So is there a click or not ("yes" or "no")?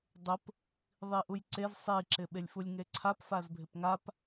yes